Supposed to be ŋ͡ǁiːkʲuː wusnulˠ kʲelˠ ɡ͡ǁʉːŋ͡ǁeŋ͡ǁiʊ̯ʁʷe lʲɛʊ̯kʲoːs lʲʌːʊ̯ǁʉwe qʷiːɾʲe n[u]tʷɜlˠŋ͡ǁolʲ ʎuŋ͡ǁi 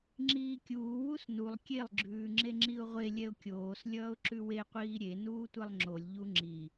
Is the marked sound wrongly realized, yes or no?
yes